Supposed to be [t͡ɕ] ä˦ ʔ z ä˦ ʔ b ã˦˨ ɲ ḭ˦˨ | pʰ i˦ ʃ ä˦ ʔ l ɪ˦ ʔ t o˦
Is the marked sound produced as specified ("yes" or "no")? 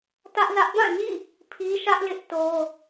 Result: no